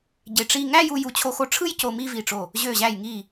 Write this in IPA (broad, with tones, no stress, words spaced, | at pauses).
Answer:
ɟe˧˩ʈ͡ʂi˥˧ ŋæ˥˧ju˧ ju˧˩t͡ɕʰo˧xo˧ʈ͡ʂʰɯ˥j co˧mi˥˧vi˧˩ʈ͡ʂo˧˩ | ʑø˧˩ʑæ˧˩jŋi˧˩